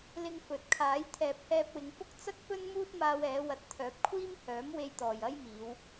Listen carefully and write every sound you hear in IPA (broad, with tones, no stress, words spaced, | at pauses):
lɪ˧ŋfɵ˨t̚kʰaː˨˥j t̪ʰɛː˨p̚hɛː˧p̚wɪ˨˧ŋfʊ˥k̚ t͡sɐ˥k̚ pɵ˥nmuː˥t̚ maː˧wɛː˨˧wɐ˨˥t̚ t̪ʰœː˨˥p̚kʷʰiː˥mhœː˨˥mwe˧j t̪ɔː˨jɐ˥jmiː˨˧w